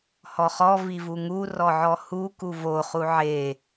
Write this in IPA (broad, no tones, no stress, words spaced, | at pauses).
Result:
hɔχɔ vivuŋu rɔʕɔhu kuvo χuʕe